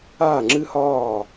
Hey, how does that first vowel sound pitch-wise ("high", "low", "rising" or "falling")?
falling